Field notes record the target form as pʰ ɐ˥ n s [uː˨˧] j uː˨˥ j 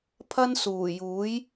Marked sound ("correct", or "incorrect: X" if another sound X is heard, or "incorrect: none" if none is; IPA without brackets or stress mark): incorrect: uː˨˩